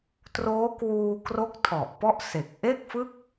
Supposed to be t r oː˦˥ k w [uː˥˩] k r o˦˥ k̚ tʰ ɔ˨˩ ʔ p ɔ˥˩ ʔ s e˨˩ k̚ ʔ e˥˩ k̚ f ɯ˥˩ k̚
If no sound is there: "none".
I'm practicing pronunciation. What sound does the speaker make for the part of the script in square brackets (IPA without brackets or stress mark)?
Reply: uː˧